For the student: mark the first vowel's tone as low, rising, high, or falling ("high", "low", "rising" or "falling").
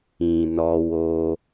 low